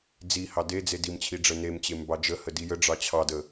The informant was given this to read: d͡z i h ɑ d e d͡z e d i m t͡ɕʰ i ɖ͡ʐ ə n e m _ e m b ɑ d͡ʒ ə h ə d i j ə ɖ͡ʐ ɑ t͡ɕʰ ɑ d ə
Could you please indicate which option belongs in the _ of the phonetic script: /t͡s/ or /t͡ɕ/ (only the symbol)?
t͡ɕ